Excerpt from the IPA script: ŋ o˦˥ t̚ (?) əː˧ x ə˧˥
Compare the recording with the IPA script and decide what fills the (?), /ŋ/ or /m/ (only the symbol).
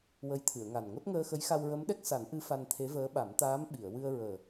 ŋ